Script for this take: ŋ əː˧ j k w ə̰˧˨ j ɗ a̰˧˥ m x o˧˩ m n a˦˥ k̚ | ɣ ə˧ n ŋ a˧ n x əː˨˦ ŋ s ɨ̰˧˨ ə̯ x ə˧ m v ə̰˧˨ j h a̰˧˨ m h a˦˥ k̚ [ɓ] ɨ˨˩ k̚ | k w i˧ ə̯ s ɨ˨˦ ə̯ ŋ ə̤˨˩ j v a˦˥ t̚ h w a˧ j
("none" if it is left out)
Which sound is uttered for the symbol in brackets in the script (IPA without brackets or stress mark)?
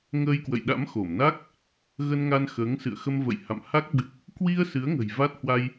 ɓ